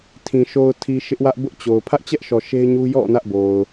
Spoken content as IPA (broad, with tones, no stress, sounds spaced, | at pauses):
tʰ ĩ˨ ʃ o˨ ʊ̯ tʰ i˨ ʃ ɪ˦ ʔ w ä˦ ʔ b ʊ˦ ʔ t͡ɕ o˨ ʊ̯ pʰ ä˦ ʔ t͡ɕ ɛ˦ ʔ ʃ ɔ˨ ʃ e˦ ɪ̯ ɲ u˦ j ɔ̰˦˨ n ä˦ ʔ b o˨ ʊ̯